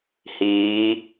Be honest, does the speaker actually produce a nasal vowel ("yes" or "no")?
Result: no